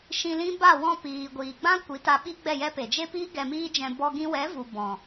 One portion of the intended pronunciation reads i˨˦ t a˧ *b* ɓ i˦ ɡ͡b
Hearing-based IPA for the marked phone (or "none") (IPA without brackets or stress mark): none